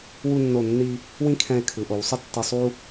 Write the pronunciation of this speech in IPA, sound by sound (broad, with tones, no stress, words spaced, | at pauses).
wu˧nːo˧˩nːi˧ | wĩ˥kʰɛ̃˧e̯ kʰɯ˩˧ʔo˩˧wsˤɪ˥˧ tːi˧ sˤu˥